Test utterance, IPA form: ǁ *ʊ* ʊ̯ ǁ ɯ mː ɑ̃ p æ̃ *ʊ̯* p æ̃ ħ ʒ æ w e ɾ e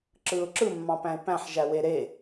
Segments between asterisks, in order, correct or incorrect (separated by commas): incorrect, incorrect